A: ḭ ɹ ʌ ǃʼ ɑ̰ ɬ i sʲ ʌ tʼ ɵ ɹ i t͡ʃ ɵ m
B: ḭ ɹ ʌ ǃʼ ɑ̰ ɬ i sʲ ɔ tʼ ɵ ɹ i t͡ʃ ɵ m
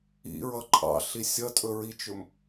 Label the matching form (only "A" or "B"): A